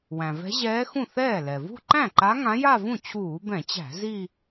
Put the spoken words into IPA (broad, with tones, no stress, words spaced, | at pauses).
wæ̃˩vɛ̤˧˥ʑɛː˧˥ xũ˥˩θɛː˥˩ lɛ˩vṳ˥˧ ǃæ̃˥˩ǃa˧˥ ŋã˧˥ja˥˧vũ˥˩ t͡ɕʰuː˧˩˧bɛ̃˧˩˧t͡ɕæ̤˧˩˧ zi˥˧